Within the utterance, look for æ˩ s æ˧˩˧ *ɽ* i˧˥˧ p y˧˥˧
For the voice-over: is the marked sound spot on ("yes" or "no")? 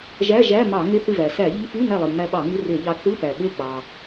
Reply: no